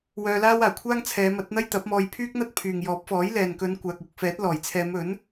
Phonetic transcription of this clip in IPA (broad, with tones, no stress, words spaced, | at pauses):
wœː˧laː˥waː˨˩ kʷʰaː˥ŋt͡sʰɛː˨˧mɐ˨˥t̚ n̪ɐ˥jt̪ɐ˨˥p̚mɔː˧j pʰyː˥k̚n̪ɐ˥t̚pʰyː˨ŋ jɔː˨˥p̚fɔː˨˥j lɛː˨nkɵ˨˧n kʷaː˨k̚wʊ˨k̚fɛː˨˥t̚lɔː˨˩j t͡sʰɛː˨˧mɵ˨˥n